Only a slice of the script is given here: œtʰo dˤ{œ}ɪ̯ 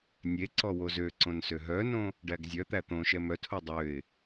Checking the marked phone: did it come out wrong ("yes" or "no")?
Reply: yes